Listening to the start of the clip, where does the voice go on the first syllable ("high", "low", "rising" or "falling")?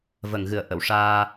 low